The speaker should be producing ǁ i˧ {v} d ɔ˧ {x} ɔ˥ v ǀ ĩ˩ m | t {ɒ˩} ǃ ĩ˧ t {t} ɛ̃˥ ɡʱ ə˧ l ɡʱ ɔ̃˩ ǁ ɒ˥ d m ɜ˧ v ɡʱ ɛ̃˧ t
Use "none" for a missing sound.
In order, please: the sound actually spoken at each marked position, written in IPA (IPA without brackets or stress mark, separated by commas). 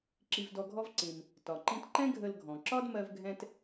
v, ɡʱ, ɒ˩, ǃ